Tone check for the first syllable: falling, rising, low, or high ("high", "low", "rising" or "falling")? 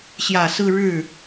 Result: low